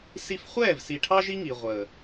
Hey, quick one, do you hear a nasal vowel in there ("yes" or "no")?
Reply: no